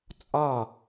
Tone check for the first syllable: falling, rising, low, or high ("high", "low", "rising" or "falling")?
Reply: falling